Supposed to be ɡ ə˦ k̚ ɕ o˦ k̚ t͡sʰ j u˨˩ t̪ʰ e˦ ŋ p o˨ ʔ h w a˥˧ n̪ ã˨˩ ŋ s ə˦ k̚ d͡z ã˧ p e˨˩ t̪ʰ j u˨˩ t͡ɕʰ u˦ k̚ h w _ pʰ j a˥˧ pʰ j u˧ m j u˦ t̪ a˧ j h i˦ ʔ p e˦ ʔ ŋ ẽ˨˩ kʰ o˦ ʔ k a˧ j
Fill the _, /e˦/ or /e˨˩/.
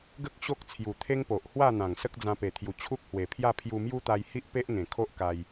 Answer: e˨˩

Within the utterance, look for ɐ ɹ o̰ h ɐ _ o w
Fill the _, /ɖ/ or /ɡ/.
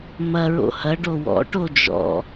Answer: ɖ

